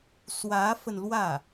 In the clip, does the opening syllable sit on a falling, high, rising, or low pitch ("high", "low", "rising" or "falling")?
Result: rising